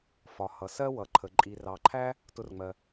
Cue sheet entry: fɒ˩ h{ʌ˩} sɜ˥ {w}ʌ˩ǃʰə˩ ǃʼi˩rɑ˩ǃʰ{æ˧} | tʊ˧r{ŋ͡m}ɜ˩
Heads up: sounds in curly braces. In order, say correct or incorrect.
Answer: correct, correct, incorrect: æ˥, correct

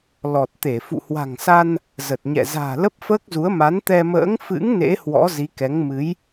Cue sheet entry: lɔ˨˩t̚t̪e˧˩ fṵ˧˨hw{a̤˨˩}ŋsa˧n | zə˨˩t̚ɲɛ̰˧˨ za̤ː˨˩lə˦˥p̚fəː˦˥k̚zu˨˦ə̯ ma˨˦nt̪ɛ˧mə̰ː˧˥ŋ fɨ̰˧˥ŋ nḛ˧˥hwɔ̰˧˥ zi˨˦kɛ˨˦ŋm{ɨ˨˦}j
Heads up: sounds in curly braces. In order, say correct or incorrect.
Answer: correct, correct

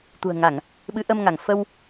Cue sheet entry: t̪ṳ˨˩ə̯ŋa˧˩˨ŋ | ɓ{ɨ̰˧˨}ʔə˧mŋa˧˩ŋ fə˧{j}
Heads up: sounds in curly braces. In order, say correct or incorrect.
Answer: incorrect: ɨ˨˦, incorrect: w

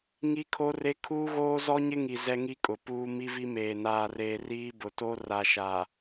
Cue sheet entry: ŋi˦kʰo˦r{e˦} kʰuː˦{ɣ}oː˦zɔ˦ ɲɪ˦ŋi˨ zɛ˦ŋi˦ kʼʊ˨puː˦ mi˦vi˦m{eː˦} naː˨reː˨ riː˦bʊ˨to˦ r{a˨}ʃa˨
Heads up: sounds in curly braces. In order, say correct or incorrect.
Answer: correct, correct, incorrect: eː˨, correct

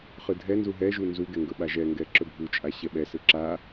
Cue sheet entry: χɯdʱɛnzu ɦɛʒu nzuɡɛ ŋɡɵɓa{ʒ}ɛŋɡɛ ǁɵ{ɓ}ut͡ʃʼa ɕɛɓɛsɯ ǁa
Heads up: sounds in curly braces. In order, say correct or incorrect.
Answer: correct, incorrect: bʱ

